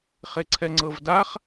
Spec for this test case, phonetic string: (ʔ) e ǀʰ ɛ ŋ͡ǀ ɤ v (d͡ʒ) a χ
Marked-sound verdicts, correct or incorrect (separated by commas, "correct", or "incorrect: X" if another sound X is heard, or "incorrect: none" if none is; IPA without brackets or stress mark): incorrect: χ, incorrect: d